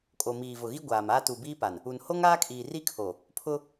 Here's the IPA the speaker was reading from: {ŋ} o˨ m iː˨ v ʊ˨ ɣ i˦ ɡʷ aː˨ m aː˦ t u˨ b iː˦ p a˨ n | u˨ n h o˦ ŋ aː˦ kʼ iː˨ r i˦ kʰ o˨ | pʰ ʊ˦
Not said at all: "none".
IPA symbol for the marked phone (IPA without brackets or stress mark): kʼ